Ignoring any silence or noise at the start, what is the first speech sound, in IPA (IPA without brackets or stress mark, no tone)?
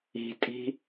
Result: i̤